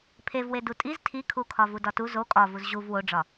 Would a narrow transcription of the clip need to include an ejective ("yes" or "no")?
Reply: yes